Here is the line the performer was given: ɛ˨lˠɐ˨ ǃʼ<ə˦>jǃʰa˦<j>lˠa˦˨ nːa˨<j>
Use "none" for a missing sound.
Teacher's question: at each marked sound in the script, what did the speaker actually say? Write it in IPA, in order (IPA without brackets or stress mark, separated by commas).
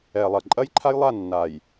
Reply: ɐ˦, j, j